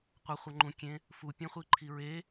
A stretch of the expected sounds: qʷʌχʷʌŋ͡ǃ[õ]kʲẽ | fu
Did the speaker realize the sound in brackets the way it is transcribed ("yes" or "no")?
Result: no